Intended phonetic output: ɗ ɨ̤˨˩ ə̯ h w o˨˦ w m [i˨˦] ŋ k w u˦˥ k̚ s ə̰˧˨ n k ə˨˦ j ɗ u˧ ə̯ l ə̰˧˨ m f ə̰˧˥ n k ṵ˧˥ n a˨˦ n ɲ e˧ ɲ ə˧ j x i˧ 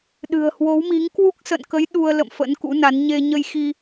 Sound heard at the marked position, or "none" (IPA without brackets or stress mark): i˨˦